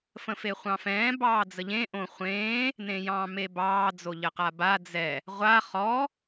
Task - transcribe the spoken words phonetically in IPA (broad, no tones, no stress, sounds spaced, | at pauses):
f ə̃ f e χʷ ɑ̃ f ɛ̃ː b ɑː d͡z ə ʎ ẽ ʔ õ χʷ ẽː | n ẽ j ɑ̃ː m e b ɑː d͡z o ʎ ə q a b a d͡z ɛ | ʁʷ a χ ɔ